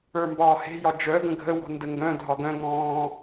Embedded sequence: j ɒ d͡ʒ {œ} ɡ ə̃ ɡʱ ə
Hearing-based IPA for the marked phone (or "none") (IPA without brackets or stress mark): œ